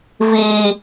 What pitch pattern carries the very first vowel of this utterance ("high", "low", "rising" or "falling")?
high